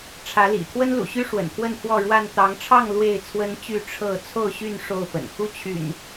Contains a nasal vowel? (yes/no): no